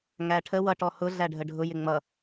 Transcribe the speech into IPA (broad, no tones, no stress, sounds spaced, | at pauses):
ŋ æ ʈʰ ə w ʌ ʈ ɔ h ʊ ɮ æ ɖʱ ə ɖʱ ʊ j ɪ ŋ͡m ʌ